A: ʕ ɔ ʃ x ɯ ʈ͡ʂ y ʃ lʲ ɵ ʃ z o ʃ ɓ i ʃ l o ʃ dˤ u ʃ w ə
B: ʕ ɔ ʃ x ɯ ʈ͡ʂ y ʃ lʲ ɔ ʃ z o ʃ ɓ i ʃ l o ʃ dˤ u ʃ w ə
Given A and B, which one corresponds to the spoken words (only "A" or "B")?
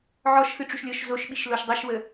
B